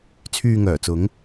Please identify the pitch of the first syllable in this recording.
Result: low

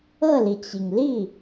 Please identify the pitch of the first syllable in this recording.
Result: falling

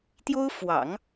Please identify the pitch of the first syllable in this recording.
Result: high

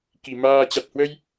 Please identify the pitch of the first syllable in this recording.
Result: low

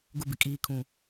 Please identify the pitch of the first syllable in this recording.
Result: high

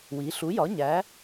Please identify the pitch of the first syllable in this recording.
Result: rising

